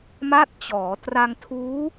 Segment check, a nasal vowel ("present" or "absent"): absent